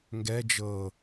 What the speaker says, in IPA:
ŋ ɡ ɛ d͡ʒ ɤ

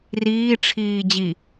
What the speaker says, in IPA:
r iː ʈ͡ʂʰ iː d͡ʑ i

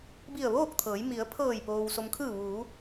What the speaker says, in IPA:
b i˧˩ ə̯ ʋ oː˥˨ k̚ t̪ʰ ɤː˩˧ j m i˩˧ ə̯ pʰ ɤː˧˩ j p oː˩ w s o˩ m kʰ ɯː˧˩ ʋ uː˩˧

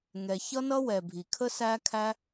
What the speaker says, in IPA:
ŋ ɛ˩ ç ʌ˥ n ʌ˥ w ɛ˩ bʱ i˩ kʰ ə˥ s æ˥ kʰ æ˥

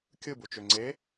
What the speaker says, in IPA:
kʲ ɯ b u t͡ʃ ø ŋ͡ǀ e

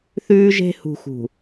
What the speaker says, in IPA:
θ ʉː˦ ʒ e̤˦ h ṳ˨ x ṳ˨

